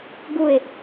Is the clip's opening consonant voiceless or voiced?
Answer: voiced